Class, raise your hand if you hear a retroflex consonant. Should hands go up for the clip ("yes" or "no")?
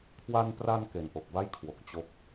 no